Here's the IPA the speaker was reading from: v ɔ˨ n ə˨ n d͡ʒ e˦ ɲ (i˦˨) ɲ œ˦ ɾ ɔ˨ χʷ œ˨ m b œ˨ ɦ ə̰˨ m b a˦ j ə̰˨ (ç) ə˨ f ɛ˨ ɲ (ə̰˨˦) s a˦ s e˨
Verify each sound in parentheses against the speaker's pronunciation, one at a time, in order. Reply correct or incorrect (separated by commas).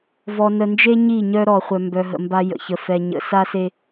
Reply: correct, correct, correct